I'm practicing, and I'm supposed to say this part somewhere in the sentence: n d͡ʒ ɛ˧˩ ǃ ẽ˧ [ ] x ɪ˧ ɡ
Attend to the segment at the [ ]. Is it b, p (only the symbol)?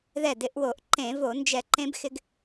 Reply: b